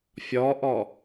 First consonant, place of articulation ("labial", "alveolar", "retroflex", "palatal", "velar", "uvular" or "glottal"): labial